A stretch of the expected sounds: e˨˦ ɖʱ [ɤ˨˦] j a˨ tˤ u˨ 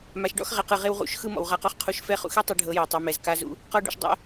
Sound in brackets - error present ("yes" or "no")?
no